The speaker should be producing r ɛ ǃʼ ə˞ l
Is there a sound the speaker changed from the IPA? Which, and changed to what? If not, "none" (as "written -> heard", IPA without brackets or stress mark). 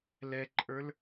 r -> l